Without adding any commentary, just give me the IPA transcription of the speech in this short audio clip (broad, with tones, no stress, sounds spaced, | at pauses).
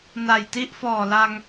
n a˨˩ j t i˥˩ ʔ f ɔː˨˩ l a˧ ŋ